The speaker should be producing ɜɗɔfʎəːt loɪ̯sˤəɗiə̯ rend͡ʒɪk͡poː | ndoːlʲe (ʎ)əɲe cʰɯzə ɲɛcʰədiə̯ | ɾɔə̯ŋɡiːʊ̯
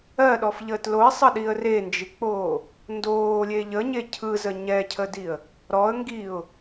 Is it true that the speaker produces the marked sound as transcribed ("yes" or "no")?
yes